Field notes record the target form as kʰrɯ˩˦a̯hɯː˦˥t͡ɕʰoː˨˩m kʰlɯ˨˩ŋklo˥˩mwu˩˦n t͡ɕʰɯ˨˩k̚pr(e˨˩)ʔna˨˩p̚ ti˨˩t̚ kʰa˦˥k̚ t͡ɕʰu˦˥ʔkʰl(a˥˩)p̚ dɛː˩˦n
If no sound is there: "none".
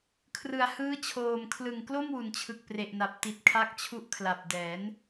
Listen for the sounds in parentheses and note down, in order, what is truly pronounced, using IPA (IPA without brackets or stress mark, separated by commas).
e˨˩, a˨˩